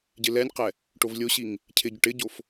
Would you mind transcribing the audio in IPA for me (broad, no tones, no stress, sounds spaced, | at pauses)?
ɟ ɪ l ɛ nʲ q ɛ | ʈ o v lʲ o ɕ i ŋ | cʰ ɪ ɟ ʊ ʈ ɪ ɟ o f